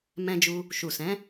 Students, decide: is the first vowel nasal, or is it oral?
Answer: nasal